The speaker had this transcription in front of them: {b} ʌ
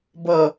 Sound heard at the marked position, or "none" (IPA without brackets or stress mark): b